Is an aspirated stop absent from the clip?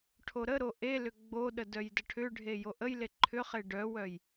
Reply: no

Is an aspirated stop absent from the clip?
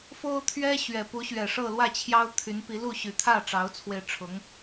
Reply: no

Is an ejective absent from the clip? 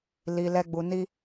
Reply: yes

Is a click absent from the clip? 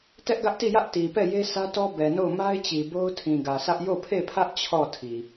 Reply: yes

